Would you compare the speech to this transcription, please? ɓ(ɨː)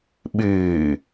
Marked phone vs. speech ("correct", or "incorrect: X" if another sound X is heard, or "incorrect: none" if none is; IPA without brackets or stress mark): correct